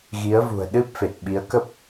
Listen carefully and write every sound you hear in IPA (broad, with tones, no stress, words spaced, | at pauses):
ɣi˨˦ə̯vṳ˨˩ə̯ɗɨ˦˥p̚ fe˨˩t̚ɓi˨˦ə̯kə˦˥p̚